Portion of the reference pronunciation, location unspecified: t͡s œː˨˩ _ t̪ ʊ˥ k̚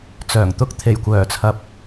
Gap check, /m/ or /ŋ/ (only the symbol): ŋ